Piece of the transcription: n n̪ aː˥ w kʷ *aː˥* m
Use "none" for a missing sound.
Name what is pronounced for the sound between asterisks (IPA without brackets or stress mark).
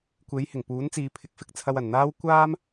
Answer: aː˥